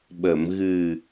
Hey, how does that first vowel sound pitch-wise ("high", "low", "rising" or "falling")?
low